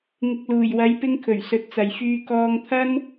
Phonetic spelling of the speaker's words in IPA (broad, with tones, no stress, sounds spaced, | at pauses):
ŋ ɪ˨ k̚ l uː˨˩ j w ɐ˨˧ j p ɪ˧ ŋ kʰ ɵ˨˩ ɥ s ɵ˨˥ t̚ t͡s ɐ˨ j f yː˧ k ɔː˧ ŋ t̪ʰ ɐ˥ n